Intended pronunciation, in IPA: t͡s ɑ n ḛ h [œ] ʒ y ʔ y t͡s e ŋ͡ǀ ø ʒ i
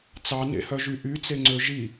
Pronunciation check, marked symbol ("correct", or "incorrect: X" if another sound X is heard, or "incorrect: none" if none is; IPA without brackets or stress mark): correct